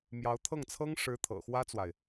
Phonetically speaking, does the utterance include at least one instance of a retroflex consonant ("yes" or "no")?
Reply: yes